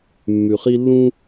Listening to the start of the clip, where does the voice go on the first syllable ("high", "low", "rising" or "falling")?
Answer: low